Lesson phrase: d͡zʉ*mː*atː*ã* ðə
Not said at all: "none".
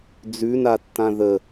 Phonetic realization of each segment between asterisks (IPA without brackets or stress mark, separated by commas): n, ã